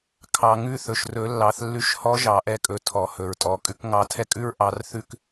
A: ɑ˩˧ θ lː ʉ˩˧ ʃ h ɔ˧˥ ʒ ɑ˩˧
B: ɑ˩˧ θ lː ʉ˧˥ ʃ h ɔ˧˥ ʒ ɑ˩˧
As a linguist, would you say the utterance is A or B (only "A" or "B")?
B